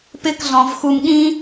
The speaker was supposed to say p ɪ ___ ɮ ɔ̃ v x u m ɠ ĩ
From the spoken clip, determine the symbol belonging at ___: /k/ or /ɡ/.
k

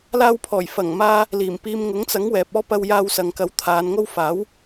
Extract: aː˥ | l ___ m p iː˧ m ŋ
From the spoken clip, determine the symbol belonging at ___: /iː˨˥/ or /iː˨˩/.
iː˨˩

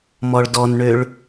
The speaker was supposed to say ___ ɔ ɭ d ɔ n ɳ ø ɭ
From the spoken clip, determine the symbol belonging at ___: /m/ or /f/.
m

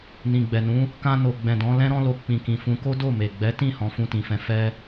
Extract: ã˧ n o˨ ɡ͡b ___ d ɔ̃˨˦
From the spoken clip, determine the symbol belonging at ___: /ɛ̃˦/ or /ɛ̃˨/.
ɛ̃˨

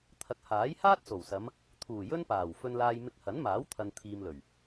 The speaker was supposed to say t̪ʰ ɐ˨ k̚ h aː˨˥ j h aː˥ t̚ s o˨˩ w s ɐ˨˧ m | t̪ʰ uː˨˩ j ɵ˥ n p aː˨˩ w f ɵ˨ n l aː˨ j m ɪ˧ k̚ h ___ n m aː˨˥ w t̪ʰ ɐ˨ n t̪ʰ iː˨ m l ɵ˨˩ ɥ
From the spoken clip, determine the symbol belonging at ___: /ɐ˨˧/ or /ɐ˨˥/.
ɐ˨˥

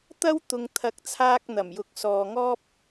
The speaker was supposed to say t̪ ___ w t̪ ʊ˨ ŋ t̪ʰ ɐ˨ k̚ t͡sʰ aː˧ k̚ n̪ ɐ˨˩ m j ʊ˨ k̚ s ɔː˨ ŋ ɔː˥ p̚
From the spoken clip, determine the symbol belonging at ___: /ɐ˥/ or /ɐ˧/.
ɐ˥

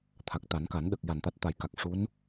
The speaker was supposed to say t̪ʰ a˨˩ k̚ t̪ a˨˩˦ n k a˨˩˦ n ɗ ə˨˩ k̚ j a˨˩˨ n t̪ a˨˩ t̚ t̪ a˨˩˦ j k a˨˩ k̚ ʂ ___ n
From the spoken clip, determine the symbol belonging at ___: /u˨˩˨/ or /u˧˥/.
u˧˥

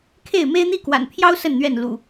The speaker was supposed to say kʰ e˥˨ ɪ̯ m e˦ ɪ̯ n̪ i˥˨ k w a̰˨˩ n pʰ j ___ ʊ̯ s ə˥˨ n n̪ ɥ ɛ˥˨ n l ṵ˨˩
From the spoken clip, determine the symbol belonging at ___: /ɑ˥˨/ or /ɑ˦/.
ɑ˦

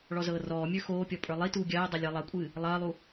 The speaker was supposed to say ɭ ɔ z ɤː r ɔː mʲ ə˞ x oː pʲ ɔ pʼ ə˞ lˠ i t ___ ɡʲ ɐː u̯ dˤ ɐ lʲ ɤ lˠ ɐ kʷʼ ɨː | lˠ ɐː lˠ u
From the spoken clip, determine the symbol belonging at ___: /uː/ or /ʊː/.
uː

